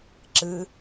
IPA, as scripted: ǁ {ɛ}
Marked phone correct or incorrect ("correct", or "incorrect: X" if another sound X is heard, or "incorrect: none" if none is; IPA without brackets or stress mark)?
incorrect: ɨ